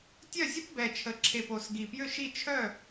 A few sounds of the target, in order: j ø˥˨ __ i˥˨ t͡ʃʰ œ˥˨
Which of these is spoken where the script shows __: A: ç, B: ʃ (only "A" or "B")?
B